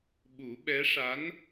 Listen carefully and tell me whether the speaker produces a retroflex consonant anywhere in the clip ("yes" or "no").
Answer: yes